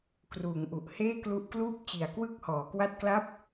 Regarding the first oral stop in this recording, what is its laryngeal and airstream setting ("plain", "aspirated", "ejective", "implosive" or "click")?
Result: plain